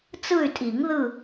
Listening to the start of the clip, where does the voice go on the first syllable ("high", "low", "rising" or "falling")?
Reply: falling